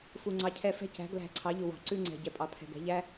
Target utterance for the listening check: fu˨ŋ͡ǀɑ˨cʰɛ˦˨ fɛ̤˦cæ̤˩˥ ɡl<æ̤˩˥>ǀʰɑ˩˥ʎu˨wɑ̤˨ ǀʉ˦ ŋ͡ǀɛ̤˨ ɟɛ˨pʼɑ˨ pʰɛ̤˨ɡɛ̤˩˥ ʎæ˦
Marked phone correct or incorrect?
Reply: incorrect: æ̤˦˨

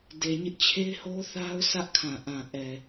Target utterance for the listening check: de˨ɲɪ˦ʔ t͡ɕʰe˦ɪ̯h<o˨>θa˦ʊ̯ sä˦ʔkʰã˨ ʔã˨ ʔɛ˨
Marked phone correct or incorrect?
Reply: incorrect: o˦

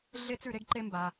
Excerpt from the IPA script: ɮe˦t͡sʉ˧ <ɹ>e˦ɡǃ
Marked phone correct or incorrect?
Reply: incorrect: ɾ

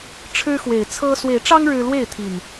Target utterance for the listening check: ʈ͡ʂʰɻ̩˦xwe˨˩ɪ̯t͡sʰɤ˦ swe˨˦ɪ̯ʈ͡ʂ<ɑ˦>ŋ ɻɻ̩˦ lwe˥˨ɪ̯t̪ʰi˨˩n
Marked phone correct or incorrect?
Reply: correct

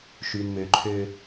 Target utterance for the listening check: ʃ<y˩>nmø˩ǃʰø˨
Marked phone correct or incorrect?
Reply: correct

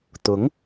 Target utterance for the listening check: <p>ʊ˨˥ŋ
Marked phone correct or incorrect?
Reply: incorrect: t̪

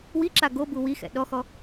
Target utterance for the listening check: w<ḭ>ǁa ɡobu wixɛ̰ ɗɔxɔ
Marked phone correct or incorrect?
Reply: incorrect: i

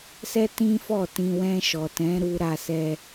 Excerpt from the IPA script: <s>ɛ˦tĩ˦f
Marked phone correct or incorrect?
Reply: correct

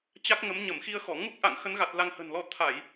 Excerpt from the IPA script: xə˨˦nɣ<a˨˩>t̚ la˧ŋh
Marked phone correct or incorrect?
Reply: correct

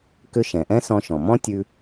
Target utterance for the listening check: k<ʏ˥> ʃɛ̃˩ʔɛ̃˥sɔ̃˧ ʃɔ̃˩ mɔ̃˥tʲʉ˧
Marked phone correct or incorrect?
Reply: correct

